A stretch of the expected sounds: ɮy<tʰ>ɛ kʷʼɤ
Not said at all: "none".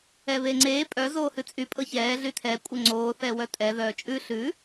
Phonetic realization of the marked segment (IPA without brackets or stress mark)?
tʰ